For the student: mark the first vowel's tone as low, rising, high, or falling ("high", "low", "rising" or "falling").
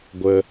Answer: high